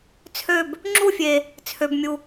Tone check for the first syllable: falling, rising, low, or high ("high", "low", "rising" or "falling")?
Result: falling